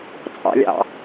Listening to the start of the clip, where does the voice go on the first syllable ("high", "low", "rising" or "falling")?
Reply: low